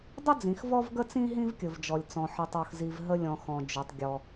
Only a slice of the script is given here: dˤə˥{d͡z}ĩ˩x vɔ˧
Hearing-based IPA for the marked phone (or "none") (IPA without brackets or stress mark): d͡z